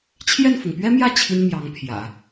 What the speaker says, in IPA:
t͡ɕʰjɛ˥˩nfʊ˩ŋ pɥɛ˥mjä˥˩ t͡ɕʰi˥nmjɑ˧˥ŋ pʰjä̰˨˩˦

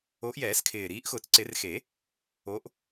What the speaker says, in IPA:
o˨˦ʔjɛː˨˩˦skʰɪː˨˩ ɾiː˨˦ʔxʊː˨˩˦t͡sǀɪ˨˩˦r xe˨˩˦ | o˨˦ʔ

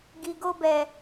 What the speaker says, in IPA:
ɡi˨ɡo˧bɛ˨

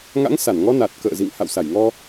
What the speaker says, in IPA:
ŋa̰˧˥ŋsa˧˩nŋɔ˧ na˨˩t̚kə̰ː˧˨zḭ˧˨ŋ ha̰˧˨wsa˧˩jŋɔ˧

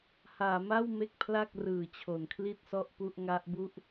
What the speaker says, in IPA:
haː˩˦ma˥˩w me˥˩k̚pʰla˥˩k̚rɯː˨˩t͡ɕʰo˩˦n kʰli˥˩t̚sɔ˥˩ʔ pu˥˩ʔŋa˦˥ʔbu˥˩ʔ

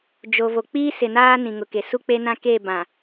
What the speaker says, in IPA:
d͡ʒo˨vo˨ k͡piː˦sɪ˨naː˦ nĩ˨ŋʊ˨ke˨ su˦k͡pe˦nã˦ ke˦˨ bã˨

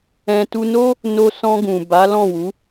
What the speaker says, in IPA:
ɛ̃˧ tu˧no˦ | no˧sɔ̃˧ ɡũ˨ ba˨˦lɔ̃˦˨wu˨˦

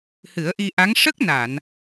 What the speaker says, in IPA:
hɨ˨˩˦ə̯ʔi˧ʔa˧˥ŋ ʂə˦˥k̚na˨˩˨n

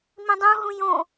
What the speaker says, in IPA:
mĩdˤũ ɦũjõ

